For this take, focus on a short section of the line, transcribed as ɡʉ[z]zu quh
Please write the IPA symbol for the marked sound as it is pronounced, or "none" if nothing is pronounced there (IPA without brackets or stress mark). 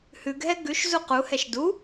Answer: ʃ